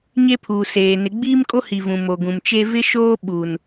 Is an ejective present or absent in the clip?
present